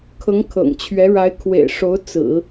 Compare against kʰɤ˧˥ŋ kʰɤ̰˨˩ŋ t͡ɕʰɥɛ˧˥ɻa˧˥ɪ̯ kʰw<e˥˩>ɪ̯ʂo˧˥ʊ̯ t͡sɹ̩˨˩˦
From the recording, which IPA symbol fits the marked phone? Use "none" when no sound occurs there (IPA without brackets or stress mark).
ḛ˨˩